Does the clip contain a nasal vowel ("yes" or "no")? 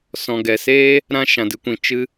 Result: yes